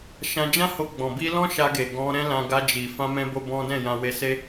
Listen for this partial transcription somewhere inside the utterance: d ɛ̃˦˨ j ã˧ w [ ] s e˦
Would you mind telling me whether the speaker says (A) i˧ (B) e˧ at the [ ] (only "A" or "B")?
B